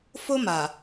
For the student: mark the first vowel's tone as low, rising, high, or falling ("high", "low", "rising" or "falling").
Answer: high